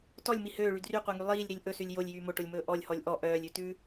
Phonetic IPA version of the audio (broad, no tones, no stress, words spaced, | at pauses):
tɔlʲmi høːɭy dryqʷɛŋy lˠiːlʲɾilʲ ʔɵsʉlʲ jolʲjyː moʈolʲmɵː ʔɔlʲhɔlʲ ʔɔ ʔœːlʲʉtʉː